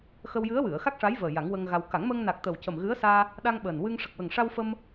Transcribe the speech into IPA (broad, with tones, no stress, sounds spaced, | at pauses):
x ə˧ w j ɨ˧˥ ə̯ w ɨ˨˩˨ ə̯ x a˦˥ k̚ ʂ a˧˥ j v əː˨˩ j a˨˩˦ ŋ w ə˧ ŋ ɣ a˧ w k a˨˩˦ ŋ m əː˧ ŋ n a˨˩ k̚ t̪ ə˨˩ w c ə˨˩ m ɣ ɨ˧˥ ə̯ s aː˧ | ɗ a˧ ŋ ɓ əː˨˩ n w ɨ˧ ŋ ʂ ə˨˩ k̚ w ə˨˩ ŋ ʂ a˧ w f ə˧ m